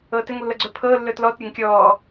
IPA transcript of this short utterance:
ɤː t ɘ ŋ lː ɤ ɡ͡ǀ ɵ pʰ ɤː lː ɵ t l ɔ t ɾʲ ɵ ŋ kʲ ɔː

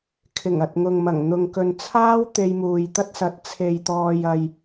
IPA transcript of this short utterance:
kʰ ɪ˨˩ ŋ ɐ˨ t̚ ŋ ʊ˨ ŋ m ɐ˨˩ ŋ n̪ ʊ˨ ŋ k ɵ˨ n t͡sʰ aː˥ w t̪ e˧ j m uː˨ j t̪ ɐ˥ t̚ s ɐ˨˥ t̚ t͡sʰ e˨ j t̪ ɔː˨ j ɐ˨ j

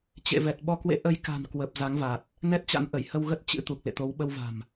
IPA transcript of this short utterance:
t͡ɕ ḛ˧˨ v ɛ˨˩ t̚ ɓ ɔ˧ k w ḛ˧˥ ʔ ə˧ j k a̤˨˩ n k w ə˨˩ p̚ z a˨˦ ŋ v a˨˩ t̚ | n ɛ˦˥ t̚ t͡ɕ a̰˧˥ n ʔ ə˧˩ j h ə˧ w ɣ ə˦˥ t̚ t͡ɕ ɨ̰˧˥ t̪ u˨˩ k̚ l ḛ˧˨ t̪ o˨˦ w ɓ ə˧ w v a̤˨˩ m

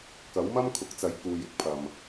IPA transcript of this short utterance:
k ɐ˨˥ w m ɐ˥ m kʰ ʊ˨ k̚ t͡s ɐ˨˥ j k uː˨ j ɪ˥ k̚ pʰ ɐ˨ m

